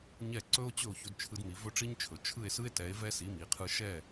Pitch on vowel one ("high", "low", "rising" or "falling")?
falling